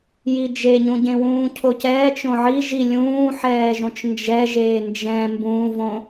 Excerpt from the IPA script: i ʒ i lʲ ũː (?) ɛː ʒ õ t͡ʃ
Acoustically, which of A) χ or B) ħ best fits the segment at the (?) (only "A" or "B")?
B